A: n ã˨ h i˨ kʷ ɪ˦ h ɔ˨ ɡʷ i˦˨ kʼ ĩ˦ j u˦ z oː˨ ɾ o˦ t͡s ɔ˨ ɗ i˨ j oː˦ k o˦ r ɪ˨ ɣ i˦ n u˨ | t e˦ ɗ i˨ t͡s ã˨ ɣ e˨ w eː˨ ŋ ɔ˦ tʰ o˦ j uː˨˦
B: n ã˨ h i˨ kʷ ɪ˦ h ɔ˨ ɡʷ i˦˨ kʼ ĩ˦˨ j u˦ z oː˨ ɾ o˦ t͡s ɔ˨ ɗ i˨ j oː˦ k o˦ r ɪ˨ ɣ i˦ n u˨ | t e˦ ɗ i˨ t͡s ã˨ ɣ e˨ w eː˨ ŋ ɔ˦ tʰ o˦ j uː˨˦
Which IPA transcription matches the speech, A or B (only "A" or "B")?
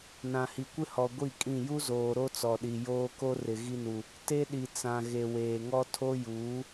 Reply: B